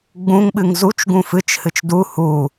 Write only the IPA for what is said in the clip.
ɡ͡bũŋɓɨŋ zut͡ʃ ɡũfɨt͡ʃ hɨt͡ʃdu hu

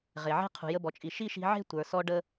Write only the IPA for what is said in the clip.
ʁe˩ʕe̤˥ qʰṳ˩jə˧bɔ˩t͡ʃʼi˩ ʃi˥ʃi̤˧ ʕe̤˥tʷə˞˩sɔ˧ ɖə˧

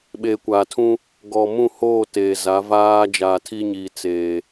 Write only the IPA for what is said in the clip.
ɓeː˨kʷaː˨tʰũ˦ | ɡɔ˨mũ˦˨hoː˦˨ teː˨za˨˦ vaː˦ d͡ʒaː˨tʰi˦ɲiː˨ t͡seː˨

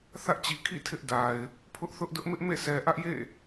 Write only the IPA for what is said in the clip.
θä˦ʔt͡ɕi˨kʰḭ˦˨ tʰɪ˦ʔda˨ɪ̯ | pʰʊ˦ʔθʊ˦ʔdʊ˦ʔ mɪ˦ʔmḛ˦˨ sɛ˨ʔä˦ʔjḛ˦˨

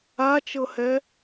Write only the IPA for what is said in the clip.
at͡ʃɤhɛ

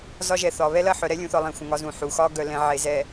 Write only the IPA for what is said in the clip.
zɒ˦ʒɛ˨θɒ˨ βɛ˦lɐ˦˨ħœ˨ ɾɛ˦lʲũ˨θɒ˨ lˠẽ˨ xʷə̃˨ŋɒ˦zũ˨ ħu˨ xɒ˦ ɡœ˨lɛ̃˨ ʕe˨zɛ˨

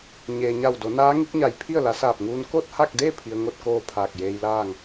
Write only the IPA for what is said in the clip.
ɲeː˩ɲa˧˩wdo˩˧ naː˧˥ŋi˧˥k̚ɲa˧˩j pʰi˥˨ə̯la˩˧saː˧˩p̚ŋuː˧n ko˥˨t̚ha˥˨k̚de˥˨ pʰi˧ə̯ŋo˥˨t̚ koː˥˨pʰaː˧˩k̚jeː˧jlaː˥˨ŋ

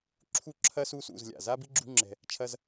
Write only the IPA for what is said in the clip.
ǁʰu˦˨ǁʰɐ˦su˦sṵ˦˨z lʲa̰˨ za˦bi˦ɡ͡ǁṳ˦ ŋ͡ǁɛ̤˦ | t͡ʃʰɐ˦z

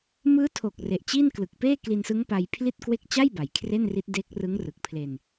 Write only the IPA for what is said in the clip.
mɯː˦˥tʰo˨˩k̚ re˨˩ʔt͡ɕi˥˩n klɯ˨˩k̚peː˥˩ kli˧nsɯ˦˥ŋpa˧j pʰli˥˩t̚kwe˥˩k̚ t͡ɕa˥˩j ba˩˦jkʰre˥˩nri˦˥t̚ de˦˥k̚ rɯ˦˥ŋrɯ˨˩k̚pʰle˧n

